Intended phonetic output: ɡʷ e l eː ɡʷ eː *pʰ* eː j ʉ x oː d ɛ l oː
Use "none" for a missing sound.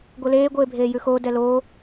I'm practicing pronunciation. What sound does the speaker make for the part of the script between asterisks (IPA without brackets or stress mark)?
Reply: bʱ